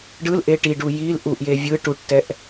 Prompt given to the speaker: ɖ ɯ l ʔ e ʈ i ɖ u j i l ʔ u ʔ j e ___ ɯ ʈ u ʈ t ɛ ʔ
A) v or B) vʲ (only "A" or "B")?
B